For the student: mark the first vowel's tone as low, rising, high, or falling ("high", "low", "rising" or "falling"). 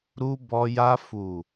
high